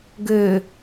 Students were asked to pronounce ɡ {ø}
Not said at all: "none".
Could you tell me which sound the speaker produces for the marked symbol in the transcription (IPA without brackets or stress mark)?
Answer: ø